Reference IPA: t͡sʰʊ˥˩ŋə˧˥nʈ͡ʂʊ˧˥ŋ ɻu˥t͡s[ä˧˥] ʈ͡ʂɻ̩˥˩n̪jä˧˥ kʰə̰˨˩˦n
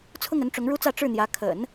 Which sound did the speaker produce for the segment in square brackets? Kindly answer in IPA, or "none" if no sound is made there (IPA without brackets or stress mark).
ä˥˧